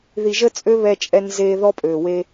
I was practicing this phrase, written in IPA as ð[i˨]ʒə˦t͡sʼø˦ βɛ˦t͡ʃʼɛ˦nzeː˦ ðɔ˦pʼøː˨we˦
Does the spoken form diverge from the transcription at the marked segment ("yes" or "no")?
no